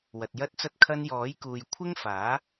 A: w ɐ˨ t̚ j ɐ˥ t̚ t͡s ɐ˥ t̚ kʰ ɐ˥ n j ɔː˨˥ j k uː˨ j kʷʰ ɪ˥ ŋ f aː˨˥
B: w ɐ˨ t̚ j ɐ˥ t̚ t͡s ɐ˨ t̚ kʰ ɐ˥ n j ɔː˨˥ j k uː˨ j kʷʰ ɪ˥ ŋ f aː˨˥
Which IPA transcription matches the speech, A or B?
A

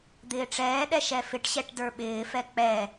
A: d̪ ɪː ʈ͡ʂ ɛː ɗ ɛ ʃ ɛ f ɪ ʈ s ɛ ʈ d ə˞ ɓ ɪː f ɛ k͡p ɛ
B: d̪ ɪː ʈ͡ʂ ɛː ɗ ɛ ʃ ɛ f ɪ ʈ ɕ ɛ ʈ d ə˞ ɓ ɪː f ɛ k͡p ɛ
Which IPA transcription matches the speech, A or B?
B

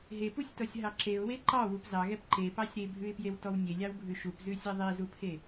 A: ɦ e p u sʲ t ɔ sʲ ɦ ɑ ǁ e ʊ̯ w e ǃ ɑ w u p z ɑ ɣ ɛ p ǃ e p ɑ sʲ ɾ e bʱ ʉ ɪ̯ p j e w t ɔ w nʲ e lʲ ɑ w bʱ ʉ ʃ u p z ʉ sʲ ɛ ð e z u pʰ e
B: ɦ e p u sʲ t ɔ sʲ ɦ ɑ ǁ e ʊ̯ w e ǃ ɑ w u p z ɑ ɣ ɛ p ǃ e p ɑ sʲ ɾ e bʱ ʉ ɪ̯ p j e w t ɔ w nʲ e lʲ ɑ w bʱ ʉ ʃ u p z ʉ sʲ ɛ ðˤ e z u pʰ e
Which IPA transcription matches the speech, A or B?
B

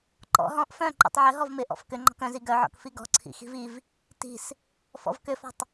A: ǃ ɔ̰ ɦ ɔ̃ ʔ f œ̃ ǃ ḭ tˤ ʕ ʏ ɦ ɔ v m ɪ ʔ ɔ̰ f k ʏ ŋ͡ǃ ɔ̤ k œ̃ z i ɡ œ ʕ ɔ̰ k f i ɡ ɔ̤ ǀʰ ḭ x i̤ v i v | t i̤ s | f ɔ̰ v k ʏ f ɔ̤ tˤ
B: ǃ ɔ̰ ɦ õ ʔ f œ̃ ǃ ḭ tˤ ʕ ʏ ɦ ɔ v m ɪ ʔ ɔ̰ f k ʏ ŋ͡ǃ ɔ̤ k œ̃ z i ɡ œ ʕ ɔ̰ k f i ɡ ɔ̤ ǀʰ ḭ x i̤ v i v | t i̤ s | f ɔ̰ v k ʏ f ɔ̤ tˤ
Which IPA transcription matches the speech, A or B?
A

